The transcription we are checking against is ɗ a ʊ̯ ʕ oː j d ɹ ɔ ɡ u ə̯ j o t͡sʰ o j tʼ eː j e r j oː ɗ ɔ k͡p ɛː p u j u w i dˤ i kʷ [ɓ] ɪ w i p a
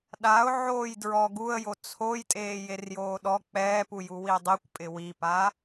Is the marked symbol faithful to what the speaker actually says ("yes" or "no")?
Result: no